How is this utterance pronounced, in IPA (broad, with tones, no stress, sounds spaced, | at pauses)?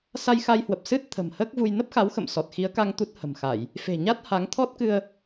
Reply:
s a˧ j x a˧ j h w ə˨˩ p̚ s ɨ˦˥ t̚ t̪ʰ ə̤˨˩ m h əː˦˥ k̚ v u˧ j n ə˦˥ p̚ x a˨˦ w x ə̰˧˨ m s ɔ˨˩ t̚ x i˨˦ ə̯ k a˧ ŋ t̪ u˦˥ t̚ h ə̤˨˩ m x a˧˩˨ j | f e̤˨˩ ɲ a˦˥ t̚ h a˨˦ ŋ t̪ʰ ɔ˦˥ t̚ k ɨ˧ ə̯